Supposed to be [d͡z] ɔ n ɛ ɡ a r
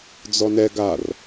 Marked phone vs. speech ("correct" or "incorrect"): correct